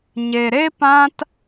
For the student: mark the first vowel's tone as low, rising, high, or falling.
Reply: low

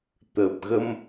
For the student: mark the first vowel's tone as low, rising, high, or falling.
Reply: low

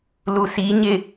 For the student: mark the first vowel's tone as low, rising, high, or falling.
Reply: low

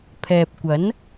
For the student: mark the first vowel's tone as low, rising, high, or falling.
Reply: low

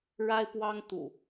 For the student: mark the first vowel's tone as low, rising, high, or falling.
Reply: high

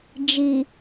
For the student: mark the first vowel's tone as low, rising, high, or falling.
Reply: low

